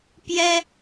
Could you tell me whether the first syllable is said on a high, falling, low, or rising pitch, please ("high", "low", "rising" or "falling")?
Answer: high